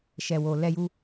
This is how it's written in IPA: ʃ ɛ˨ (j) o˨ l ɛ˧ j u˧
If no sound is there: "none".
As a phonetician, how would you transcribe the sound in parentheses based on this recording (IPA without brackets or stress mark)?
w